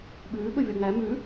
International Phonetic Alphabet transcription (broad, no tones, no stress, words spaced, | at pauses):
ɓʉːɓɵvʲɔ ŋæ mʉ